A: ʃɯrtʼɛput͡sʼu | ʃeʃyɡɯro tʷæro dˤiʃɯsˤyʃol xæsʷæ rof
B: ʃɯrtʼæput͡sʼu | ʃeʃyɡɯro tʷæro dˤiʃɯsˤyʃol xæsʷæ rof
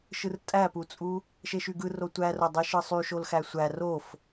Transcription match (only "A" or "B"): B